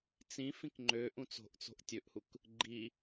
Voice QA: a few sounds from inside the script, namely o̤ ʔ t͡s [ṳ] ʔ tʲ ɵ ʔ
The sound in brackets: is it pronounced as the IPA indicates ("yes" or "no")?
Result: no